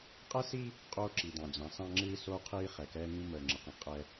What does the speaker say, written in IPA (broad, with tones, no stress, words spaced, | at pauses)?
qʼɛ˦si˦ | qʼoː˦ǁi˨dɑ̃˨d͡ʑɑ̃˨˦ sɑ̃˦ŋ͡ǁɨː˦ soː˦qʰiː˦χɛ˨ kɛː˦ŋĩ˦ məː˨ŋ͡ǁə˨qĩ˨ qʼɛ˦